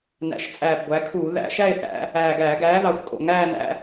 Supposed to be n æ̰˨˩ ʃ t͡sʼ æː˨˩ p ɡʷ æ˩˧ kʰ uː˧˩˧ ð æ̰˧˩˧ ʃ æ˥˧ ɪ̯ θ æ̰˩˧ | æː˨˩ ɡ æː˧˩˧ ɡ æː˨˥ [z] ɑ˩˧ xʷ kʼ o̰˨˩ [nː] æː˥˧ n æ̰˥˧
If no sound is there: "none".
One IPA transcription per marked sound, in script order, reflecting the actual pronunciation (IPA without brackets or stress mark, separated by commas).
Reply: ð, ŋ